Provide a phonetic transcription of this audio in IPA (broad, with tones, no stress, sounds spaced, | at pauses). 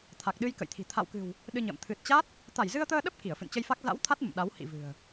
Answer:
t̪ʰ a˨˩ k̚ ɗ ɨ˧ j k ə̰˧˨ j t̪ʰ i̤˨˩ t̪ʰ a̰˧˨ w k ɨ̤˨˩ w | ɗ ɨ˧ ɲ ə̰ː˧˨ m t̪ʰ ɨ˨˩ t̚ t͡ɕ a˦˥ t̚ | t̪ a˧˩ j z ɨ˧ ə̯ t̪ əː˧ ɗ ə˦˥ p̚ k i˧˩ ə̯ f ɨ̰˧˨ n t͡ɕ ə˧ j f a˦˥ k̚ z a̰˧˥ w t̪ʰ a˦˥ t̚ m ə̰˧˨ m ɗ a˨˦ w h ḭ˧˨ v ɨ̤˨˩ ə̯